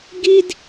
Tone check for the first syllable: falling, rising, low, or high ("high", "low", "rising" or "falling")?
high